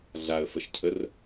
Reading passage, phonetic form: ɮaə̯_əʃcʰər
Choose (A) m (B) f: B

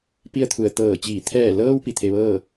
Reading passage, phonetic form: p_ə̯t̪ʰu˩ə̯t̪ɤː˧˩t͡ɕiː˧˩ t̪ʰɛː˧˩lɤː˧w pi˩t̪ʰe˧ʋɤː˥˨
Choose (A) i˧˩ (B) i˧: B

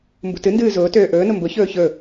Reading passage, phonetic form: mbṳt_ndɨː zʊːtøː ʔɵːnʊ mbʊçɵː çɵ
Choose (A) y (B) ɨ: B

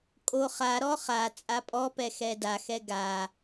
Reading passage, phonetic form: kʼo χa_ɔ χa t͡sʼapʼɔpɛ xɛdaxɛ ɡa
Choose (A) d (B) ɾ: B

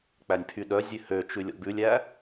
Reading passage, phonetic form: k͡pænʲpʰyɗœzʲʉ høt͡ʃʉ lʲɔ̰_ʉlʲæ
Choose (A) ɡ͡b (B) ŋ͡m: A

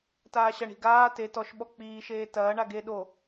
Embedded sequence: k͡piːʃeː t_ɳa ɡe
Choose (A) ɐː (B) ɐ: A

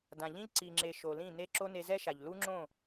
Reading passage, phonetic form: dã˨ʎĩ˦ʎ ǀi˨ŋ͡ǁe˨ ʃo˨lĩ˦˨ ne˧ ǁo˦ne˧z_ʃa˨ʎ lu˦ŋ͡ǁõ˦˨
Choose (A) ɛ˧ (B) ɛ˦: B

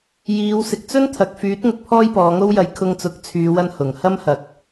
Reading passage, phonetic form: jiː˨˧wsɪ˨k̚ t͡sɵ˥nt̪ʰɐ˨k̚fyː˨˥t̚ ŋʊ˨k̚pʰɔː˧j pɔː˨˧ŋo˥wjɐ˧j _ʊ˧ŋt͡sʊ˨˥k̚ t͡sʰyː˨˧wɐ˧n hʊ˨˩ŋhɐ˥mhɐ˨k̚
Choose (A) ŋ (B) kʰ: B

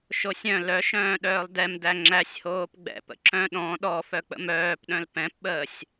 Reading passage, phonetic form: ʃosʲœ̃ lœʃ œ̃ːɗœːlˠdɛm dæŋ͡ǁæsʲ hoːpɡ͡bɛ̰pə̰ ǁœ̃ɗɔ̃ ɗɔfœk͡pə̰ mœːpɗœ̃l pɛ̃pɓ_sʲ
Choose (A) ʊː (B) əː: B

